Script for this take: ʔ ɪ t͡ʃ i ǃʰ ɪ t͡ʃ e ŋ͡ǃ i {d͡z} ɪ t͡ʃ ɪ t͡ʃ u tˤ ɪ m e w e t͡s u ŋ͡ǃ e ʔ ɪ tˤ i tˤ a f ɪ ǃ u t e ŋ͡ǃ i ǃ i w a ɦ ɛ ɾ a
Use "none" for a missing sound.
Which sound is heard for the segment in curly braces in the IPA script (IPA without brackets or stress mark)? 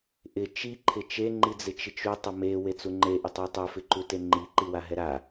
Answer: d͡z